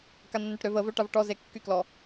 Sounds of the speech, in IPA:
kanːœʈɾøv əvø ʈavʈɔze kːyklɔ

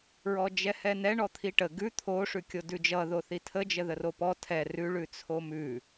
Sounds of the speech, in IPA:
ɹɔd͡ʒɛhɛnɛ ɳɔt̪ʰiʈə ɡʉ t̪ʰo ʂʉkʲodʉd͡ʒʌ ðoθitʰə d͡ʒəðəropɔ tʰɛ rʉ ɭʉt͡sʰomʉ

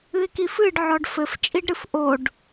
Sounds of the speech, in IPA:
ɨɪ̯kifɨɖ ʕɔɖfɘf t͡ʃʼiɖɾɨfʔoɖ

